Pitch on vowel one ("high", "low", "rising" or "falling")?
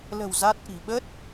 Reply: low